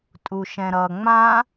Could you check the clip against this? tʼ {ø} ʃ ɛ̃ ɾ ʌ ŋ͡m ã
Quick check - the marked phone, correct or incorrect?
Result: incorrect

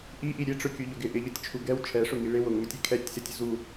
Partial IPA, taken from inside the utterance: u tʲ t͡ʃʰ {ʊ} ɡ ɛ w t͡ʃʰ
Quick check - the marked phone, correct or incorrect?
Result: incorrect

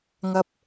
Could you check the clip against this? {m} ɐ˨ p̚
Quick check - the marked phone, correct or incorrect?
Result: incorrect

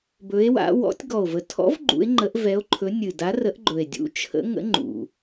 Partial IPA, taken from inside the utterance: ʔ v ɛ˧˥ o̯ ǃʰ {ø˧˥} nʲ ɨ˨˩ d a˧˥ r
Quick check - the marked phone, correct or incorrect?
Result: incorrect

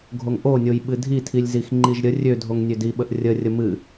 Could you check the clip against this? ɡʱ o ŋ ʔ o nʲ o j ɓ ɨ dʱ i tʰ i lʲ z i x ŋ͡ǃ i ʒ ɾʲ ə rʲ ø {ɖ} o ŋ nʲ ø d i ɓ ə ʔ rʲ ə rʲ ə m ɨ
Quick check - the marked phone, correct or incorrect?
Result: incorrect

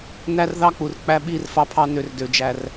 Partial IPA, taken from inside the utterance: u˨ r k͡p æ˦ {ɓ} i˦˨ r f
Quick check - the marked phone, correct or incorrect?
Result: correct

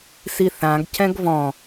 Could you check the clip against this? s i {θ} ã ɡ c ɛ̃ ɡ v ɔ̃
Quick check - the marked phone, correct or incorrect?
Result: correct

